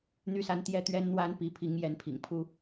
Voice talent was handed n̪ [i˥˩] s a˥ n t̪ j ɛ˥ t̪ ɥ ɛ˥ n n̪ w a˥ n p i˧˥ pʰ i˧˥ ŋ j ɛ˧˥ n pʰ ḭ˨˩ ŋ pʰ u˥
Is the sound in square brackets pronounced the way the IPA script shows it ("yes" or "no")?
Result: no